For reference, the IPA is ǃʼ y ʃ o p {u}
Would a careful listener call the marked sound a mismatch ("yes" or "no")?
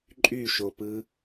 yes